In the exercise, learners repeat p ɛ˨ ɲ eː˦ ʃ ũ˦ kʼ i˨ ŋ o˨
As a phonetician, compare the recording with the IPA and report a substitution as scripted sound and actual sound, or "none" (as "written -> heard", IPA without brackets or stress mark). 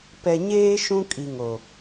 none